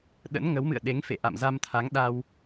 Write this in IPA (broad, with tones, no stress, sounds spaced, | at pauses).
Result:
ɗ ə̰˧˥ n ŋ ə˨˦ w m ɨ̰˧˨ ə̯ ɗ e˨˦ ŋ f ḛ˧˨ ʔ a̰˧˨ m z a˧ m t̪ʰ a˨˦ ŋ ɗ a˧ w